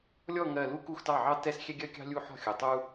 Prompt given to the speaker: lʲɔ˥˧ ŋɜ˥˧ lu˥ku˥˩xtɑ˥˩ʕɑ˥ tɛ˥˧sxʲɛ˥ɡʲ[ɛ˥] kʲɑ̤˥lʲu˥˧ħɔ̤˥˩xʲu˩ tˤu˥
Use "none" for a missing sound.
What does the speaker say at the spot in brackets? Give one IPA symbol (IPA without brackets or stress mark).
ɜ˥